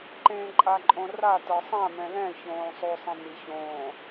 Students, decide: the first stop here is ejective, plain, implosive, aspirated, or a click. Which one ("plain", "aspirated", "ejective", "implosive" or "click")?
click